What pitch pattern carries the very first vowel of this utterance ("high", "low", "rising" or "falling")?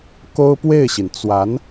high